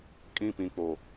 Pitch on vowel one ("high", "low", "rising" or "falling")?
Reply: falling